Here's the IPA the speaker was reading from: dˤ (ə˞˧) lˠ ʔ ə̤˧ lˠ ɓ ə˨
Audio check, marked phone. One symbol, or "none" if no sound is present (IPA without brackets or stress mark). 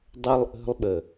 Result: ə˧